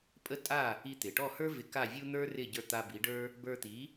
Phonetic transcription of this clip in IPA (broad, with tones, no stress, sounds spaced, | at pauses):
pʼ ə˥ tʼ a˥˩ | i˧ t̪ ɪ˩ ʈ ɔ˥˩ h ə˞˥ v ɪ˧ k a˥˩ vʲ u˥ n̪ ə˞˥ r ɪ˥˩ ɟ ə˞˧ t̪ a˧ b i˩˥ ɖ ə˞˥ | b ə˞˧ t̪ i˩˥